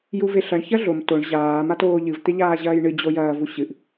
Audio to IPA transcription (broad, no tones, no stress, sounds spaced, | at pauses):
j u v e ɬ ɐ ɳ ç ɐ ɮ o m t o ɳ ʑ aː m a t oː ʎ ɨ v t̪ e ʎ aː ʑ ɐː j ɳ ɨ d͡ʑ o j ɐː v u ɕ ɨ ʔ